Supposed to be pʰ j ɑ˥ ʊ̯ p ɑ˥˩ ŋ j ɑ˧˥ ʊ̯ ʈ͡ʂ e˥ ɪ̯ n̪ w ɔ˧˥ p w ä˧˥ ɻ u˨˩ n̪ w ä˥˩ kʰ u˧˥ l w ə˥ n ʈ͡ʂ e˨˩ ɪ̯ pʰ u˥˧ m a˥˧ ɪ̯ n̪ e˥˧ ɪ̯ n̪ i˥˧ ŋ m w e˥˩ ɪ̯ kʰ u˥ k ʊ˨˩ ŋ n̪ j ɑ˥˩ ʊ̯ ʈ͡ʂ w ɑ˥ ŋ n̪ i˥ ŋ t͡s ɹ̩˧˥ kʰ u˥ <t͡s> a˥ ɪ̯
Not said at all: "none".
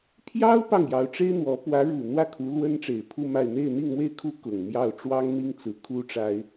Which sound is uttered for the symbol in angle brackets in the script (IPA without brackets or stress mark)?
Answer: ʈ͡ʂ